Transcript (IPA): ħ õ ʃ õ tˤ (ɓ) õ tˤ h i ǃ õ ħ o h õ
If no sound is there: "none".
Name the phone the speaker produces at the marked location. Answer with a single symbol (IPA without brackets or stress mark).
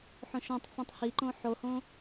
f